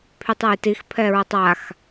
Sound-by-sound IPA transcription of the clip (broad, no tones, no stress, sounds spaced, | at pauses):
pʰ y tˤ a j t i x pʰ ɛ ɹ ə tˤ a x